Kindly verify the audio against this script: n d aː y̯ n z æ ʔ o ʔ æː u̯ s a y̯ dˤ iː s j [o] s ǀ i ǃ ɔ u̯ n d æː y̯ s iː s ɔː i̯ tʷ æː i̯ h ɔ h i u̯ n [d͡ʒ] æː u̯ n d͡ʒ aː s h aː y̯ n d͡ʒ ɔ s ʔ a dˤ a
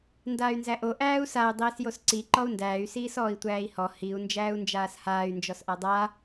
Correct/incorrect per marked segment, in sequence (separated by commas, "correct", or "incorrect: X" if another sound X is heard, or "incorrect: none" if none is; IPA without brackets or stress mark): correct, correct